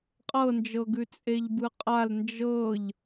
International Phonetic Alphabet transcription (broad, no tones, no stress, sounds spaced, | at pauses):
qʼ ɤ n d͡ʒ ɤ ɡ ʉ t͡sʼ e ʎ b ɯ qʼ a l n d͡ʒ ɤ ʎ